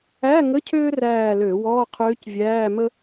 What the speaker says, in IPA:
æ˧˥˧ŋə˧˥˧ cʰøː˥ræː˦˨lø˧˩˧ wɔː˧˥˧qʰøː˧˥cvʲæː˧˥˧mə˥

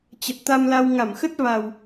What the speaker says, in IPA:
t͡ɕə˨˩t̚t̪a˧mla˧w ŋa˧˩mxə˦˥t̚ va˨˩w

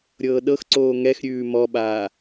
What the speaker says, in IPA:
ɾʲɤːɗɤxǀoː ŋɛxɾʲʉː mɔɓaː

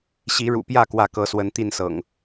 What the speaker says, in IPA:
ɕi˨˦ɻṵ˨˩pjä˥˨ kwä˥˨kɤ˨˦swə˨˦n t̪i˥˨nsɤ̰˨˩ŋ

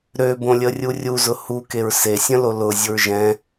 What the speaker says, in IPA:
ɾøbõlʲərʲu rʲuzʊ hukeɹ sesʲə̃lo lʊzʲʊɹ ʒɛ̃

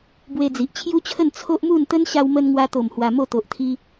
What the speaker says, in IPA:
bwe˧d͡zi˨ʔt͡ɕʰju˦t͡ɕʰə˥˧n t͡sʰo˦ʔmu˥˧n t̪ə˦n ɕa˧wmə˧nŋwa˧t̪o˨˩m hwa˧mo˥˧ t̪o˨ʔt̪ʰi˧

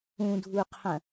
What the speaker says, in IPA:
ũdʱuqʰɐ̃

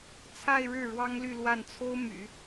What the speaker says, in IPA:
t͡sʰa˥˧ɪ̯ ɻɻ̩˥˩ ɻwɑ˥ŋly˥˧ lwa˥˩nt͡sʰo˥ʊ̯my̰˨˩˦

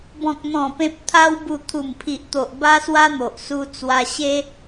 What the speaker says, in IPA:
bɔ̃˨k̚n̪ɔ̃˨˩ pẽ˨p̚t̪ʰa˧wbu˨˩ t̪ʰu˨˩mpʰi˨ʔt̪o˨ʔ ba˦swa˦n̪o˨ʔ su˧t͡swa˧ɕe˦

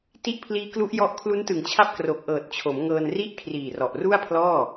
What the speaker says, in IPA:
ti˦˥ʔpʰliː˦˥klu˦˥ʔjɔ˦˥ʔ kʰlu˦˥ntɯ˨˩ŋt͡ɕʰa˦˥p̚ kro˨˩k̚ʔɤː˨˩t̚t͡ɕʰo˩˦m ŋɤː˧nri˥˩ʔ kʰriː˨˩rɔ˨˩ʔru˥˩a̯pʰlɔː˥˩

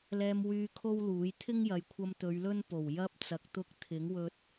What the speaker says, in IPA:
lɛː˧mwyː˧ kʰo˥wluː˨˥j t̪ʰɪ˥ŋjɐ˨jkʷʰɐ˧m t̪ɵ˨˧ɥlɵ˥n po˨˩w jɐ˥p̚t͡sɐ˨˥k̚ t̪ʊ˧k̚t̪ʰɪ˨˥ŋwɵ˧t̚

